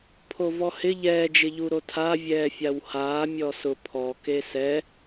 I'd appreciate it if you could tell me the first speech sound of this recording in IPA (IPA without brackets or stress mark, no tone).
pʰ